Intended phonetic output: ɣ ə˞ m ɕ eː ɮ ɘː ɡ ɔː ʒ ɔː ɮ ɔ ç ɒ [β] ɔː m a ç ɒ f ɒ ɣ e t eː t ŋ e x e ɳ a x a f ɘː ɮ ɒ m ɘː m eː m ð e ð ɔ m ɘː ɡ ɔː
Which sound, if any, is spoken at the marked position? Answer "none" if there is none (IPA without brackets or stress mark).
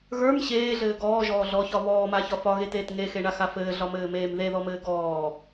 β